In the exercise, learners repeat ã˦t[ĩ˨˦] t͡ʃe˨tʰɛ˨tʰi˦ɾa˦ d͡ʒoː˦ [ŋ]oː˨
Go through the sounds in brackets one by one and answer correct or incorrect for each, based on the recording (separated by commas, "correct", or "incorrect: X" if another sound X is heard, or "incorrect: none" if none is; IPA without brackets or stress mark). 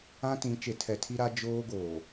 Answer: correct, incorrect: ɡ